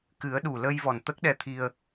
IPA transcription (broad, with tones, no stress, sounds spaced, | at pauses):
k ɨ˨˩˦ ə̯ ɗ u˨˩ l ə˧ j v ɔ˨˩ n t̪ ə˦˥ k̚ ɗ ɛ˧ t̪ʰ i˧ ə̯